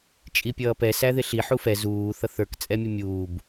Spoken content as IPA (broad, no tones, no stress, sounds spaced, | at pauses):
t͡ʃʼ i pʲ ʌː p ɛ s æ ð ɪ ɬ i ħ u f ɛ z uː θ ʌ θ ə˞ k t͡sʼ ɛ mʲ ʊ mʲ uː b